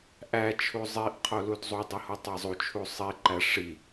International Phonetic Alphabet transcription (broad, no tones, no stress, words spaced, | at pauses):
ʔæt͡ʃʰu zˤiʔqʰo ludzˤudˤi hotˤæzˤut͡ʃʰu sˤiǃæ ʂi